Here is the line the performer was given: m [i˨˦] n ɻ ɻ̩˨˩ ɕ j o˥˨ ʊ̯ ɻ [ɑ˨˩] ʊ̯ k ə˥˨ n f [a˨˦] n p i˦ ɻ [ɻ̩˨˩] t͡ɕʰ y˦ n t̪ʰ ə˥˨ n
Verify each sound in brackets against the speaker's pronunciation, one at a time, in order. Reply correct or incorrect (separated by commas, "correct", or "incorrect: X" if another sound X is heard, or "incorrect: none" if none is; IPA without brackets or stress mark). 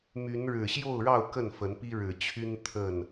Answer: incorrect: y˨˦, incorrect: ɑ˥˨, incorrect: ə˨˦, correct